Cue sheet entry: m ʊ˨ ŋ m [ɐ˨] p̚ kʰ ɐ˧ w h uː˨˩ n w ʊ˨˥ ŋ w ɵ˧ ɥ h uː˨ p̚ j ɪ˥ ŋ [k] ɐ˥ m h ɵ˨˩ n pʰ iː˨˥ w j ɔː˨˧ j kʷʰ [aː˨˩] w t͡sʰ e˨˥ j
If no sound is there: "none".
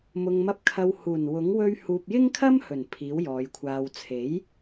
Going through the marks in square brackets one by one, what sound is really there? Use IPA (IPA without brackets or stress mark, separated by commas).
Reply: ɐ˧, kʰ, aː˧